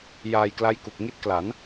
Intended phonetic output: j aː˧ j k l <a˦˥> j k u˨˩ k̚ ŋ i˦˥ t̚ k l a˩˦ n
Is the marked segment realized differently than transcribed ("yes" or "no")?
no